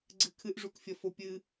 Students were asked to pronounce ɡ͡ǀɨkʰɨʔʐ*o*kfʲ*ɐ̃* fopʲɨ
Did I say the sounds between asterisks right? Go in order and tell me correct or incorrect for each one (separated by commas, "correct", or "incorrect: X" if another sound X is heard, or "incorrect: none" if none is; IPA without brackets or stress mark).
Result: incorrect: u, incorrect: ɐ